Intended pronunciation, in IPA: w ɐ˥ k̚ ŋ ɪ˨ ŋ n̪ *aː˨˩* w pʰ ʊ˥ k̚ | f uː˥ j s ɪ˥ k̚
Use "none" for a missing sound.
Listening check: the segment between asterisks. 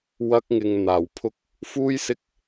aː˨˩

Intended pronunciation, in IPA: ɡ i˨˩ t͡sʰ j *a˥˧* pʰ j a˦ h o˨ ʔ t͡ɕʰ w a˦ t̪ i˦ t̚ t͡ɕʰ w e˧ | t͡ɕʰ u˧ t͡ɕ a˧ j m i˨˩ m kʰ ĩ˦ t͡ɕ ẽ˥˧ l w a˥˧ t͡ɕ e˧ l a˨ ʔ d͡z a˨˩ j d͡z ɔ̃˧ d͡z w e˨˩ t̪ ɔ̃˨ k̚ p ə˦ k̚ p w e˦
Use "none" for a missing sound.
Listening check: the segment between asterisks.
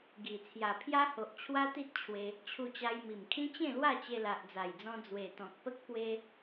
a˨˩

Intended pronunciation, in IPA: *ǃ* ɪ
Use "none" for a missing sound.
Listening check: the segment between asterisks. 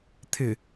t̪ʰ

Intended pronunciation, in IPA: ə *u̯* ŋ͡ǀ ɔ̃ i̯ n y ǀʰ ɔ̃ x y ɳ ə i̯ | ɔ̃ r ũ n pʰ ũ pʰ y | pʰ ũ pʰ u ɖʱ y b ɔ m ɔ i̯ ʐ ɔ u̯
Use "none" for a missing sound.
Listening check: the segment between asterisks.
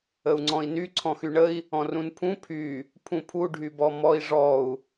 u̯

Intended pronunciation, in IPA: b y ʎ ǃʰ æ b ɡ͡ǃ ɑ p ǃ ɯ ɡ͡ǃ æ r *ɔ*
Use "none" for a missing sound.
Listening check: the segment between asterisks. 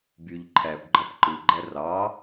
ɑ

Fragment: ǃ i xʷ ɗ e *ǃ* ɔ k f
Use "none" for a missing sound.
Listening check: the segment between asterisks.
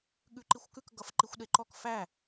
ǃ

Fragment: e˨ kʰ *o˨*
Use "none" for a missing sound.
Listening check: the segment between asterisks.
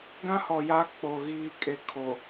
o˨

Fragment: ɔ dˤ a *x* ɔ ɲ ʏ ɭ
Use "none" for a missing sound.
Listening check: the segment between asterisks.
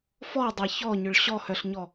ç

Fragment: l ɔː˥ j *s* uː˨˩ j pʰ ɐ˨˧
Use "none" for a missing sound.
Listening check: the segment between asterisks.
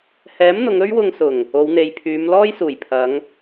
s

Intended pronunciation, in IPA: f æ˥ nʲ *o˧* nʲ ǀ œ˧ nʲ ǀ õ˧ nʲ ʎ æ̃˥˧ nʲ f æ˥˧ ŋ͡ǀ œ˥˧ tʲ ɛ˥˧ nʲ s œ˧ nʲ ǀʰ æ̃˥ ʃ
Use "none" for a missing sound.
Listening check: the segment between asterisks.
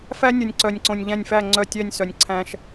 o˧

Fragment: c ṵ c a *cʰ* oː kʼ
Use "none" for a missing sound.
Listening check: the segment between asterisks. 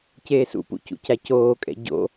c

